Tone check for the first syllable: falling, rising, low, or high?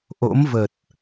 rising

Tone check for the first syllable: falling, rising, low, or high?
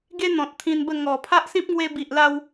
high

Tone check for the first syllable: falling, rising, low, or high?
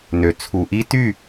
low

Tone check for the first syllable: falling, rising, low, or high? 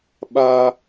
high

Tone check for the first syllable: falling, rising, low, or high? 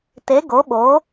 rising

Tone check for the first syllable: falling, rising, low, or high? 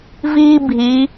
high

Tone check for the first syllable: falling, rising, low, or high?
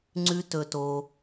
high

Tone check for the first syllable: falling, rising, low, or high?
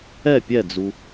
falling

